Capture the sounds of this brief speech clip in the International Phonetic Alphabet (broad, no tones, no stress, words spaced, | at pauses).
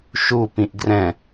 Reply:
ʃu pĩʔɡrɛ̃